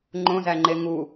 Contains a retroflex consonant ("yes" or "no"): no